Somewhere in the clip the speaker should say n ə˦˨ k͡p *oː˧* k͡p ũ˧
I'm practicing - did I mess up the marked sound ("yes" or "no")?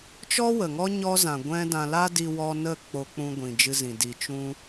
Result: yes